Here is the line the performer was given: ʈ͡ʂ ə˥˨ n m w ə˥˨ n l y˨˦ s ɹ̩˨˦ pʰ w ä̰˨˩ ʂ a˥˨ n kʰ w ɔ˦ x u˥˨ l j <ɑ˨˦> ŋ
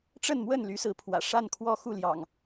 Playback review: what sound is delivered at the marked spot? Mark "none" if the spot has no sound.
ɑ̰˨˩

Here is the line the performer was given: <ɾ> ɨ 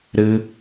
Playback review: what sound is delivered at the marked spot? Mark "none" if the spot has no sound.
ɾ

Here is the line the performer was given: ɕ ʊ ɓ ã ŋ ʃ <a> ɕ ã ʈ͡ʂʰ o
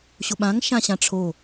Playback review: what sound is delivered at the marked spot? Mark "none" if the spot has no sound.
ã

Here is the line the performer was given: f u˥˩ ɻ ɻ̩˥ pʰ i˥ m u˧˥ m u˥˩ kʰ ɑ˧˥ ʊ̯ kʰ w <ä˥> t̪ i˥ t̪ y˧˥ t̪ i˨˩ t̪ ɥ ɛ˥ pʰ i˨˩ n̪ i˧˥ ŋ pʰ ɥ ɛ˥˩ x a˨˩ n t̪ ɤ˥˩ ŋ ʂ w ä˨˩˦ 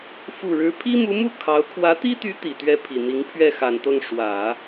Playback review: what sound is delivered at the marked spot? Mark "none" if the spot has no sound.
ä˧˥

